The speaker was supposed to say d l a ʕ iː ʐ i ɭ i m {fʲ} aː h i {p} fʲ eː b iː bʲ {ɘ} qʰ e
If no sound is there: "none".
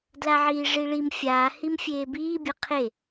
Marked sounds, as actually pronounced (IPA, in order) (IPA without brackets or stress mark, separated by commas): fʲ, m, ɘ